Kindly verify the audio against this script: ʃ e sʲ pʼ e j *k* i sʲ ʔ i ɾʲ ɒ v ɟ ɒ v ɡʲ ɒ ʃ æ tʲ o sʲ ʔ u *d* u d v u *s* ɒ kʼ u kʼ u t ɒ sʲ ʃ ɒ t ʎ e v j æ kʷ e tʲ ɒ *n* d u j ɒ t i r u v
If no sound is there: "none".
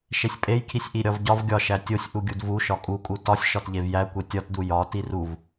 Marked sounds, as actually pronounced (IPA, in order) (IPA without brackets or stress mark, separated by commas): kʰ, ɡʲ, ʃ, t